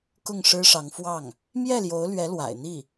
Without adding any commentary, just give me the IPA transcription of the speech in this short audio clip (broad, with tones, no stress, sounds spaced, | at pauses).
k ʊ˥˩ ŋ ʂ ɻ̩˥ ʂ ɑ˧˥ ŋ f w ɑ˥˩ ŋ | m j ɛ˥˩ l j o˧˥ ʊ̯ l ɥ ɛ˧˥ l w a̰˨˩ ɪ̯ n̪ i˥˩